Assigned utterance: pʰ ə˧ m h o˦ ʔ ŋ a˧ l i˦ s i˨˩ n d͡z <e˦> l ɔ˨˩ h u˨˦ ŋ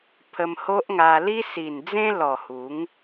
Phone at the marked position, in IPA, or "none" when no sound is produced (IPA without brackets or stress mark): ẽ˦